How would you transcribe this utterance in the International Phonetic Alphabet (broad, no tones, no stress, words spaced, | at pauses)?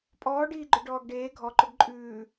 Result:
pʼɔːɖiːɡ͡ǃʏ ɖɔːɡɖeː ɡʱɔǃʏɡ ǃʼʉː